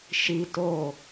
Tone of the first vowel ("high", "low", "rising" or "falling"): high